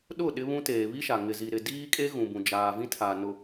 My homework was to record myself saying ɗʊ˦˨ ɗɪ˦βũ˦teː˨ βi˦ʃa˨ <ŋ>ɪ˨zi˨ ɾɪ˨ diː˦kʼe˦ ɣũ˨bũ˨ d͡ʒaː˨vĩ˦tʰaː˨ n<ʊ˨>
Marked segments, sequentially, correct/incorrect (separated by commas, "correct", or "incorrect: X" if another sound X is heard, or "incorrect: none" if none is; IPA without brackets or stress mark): correct, correct